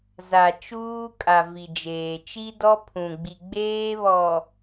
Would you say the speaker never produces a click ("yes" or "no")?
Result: yes